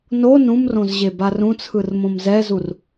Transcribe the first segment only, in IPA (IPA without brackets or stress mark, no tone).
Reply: n